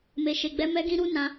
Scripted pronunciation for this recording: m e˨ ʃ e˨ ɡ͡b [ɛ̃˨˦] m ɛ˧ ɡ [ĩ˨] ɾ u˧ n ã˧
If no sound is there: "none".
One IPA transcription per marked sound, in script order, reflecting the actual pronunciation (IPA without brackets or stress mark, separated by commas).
ɛ˨˦, ĩ˧